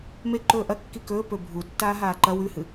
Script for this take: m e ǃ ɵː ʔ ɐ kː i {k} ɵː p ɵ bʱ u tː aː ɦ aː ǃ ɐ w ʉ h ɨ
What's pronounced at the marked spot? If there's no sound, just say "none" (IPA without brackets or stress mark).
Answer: k